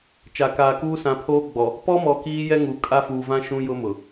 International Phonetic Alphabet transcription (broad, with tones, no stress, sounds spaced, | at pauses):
t͡ʃ a˨ k aː˨ k uː˦ s ã˨˦ pʰ oː˦ ɡ͡b ɔ˨ | p ɔ˦ m ɔ˨ k iː˦ j ɛ˦ ŋ u˨ kʼ a˦ f uː˨ v ã˦ ʃ ũ˦ j ʊ˦ m ʊ˨